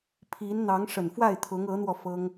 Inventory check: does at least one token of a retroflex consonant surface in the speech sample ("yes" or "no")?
yes